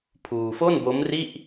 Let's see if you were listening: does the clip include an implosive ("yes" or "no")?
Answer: no